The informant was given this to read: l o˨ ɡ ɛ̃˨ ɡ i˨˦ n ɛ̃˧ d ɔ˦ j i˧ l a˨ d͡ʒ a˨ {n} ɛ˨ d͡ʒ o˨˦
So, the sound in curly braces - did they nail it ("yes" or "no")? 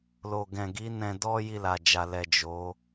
no